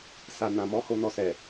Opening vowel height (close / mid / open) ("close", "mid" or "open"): open